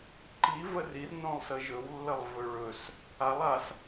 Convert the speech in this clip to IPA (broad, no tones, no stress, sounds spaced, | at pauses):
ǃ i v ə r i r n õ lˠ s ə ʒ ɵ w lː ə lˠ v ɵ ɭ ɵ s | a lˠ a s